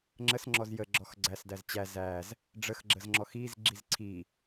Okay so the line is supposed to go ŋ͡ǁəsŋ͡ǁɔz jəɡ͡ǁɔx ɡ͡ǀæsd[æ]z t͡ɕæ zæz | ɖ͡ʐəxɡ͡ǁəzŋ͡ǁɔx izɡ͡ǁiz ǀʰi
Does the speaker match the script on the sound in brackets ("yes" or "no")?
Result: yes